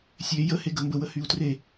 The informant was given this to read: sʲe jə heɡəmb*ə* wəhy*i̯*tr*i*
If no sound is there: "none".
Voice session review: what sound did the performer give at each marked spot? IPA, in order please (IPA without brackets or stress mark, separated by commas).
ə, u̯, e